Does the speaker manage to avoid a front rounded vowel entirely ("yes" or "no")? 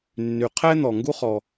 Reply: no